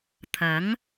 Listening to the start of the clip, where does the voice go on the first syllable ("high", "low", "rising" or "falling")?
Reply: rising